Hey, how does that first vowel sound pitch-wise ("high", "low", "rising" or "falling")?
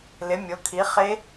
rising